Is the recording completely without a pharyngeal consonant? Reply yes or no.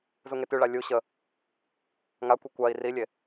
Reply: yes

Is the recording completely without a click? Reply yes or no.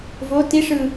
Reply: yes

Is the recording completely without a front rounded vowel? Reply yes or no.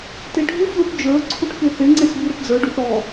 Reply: yes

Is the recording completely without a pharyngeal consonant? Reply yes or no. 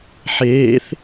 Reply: no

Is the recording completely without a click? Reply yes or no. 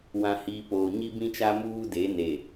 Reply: yes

